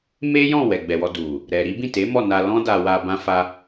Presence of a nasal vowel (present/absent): present